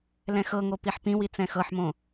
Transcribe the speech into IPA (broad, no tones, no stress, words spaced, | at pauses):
lɛ̃xɤŋo piħpĩwi t͡sɛ̃xɤħmõ